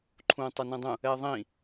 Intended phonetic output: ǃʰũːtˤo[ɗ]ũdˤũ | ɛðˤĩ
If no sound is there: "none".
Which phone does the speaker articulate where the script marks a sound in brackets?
n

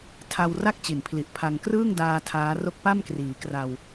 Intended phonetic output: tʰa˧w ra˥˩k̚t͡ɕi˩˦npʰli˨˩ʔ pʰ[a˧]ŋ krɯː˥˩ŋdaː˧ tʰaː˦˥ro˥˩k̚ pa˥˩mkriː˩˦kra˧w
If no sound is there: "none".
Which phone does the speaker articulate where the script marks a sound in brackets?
a˧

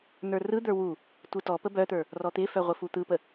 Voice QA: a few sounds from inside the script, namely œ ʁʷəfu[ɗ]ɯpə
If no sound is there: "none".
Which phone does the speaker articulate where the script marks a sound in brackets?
t̪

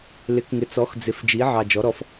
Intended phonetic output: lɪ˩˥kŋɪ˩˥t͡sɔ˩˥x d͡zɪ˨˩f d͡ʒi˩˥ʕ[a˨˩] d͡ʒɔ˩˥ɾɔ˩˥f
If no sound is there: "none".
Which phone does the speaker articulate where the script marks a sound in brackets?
ɑ˨˩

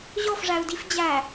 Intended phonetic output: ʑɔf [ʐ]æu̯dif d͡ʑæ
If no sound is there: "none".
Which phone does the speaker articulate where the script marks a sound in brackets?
ʐ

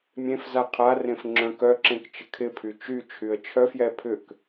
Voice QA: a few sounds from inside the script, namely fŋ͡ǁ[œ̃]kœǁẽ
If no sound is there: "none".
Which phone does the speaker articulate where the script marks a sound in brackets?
œ̃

